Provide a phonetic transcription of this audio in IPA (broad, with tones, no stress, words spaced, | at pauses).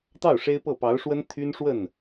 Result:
t̪ɑ˥˩ʊ̯ ʂe˥ɪ̯pɤ˥˩ pɑ˧˥ʊ̯ʂwə˥n t̪ʰy˥nʂwə˥˩n